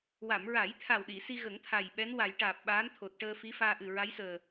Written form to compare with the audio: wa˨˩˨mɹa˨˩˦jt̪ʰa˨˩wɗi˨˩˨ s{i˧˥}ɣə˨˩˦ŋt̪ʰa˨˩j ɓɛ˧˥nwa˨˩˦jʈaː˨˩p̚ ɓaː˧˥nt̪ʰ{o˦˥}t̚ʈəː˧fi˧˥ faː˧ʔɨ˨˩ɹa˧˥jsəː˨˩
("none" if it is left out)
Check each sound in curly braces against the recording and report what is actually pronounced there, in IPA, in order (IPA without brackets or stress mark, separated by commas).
i˧, o˨˩